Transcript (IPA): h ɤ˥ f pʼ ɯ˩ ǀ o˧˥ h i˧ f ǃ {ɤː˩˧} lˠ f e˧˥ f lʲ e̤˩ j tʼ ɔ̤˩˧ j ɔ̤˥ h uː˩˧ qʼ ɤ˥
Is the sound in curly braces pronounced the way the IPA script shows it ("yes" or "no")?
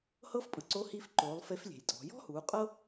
no